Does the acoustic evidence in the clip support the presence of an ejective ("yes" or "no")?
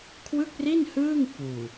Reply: no